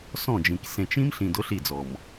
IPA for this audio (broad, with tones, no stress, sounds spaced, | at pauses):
s ɔ̃˦˨ d͡ʒ ĩ˨ k s ẽ˨ t͡ʃ ĩ˦ m ɬ ĩ˨ d ʊ˨˦ ɬ i˦˨ d͡z ɔ˨ m